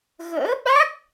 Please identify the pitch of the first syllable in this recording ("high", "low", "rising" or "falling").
rising